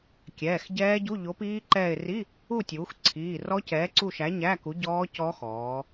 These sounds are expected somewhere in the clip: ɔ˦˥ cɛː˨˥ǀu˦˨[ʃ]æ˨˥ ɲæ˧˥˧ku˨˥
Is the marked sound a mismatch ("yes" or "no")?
no